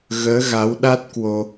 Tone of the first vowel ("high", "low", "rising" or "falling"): rising